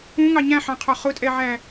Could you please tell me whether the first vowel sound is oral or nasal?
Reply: nasal